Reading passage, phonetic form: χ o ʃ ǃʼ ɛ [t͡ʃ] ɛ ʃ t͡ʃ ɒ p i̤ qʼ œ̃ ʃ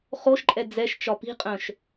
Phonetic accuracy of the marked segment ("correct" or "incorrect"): incorrect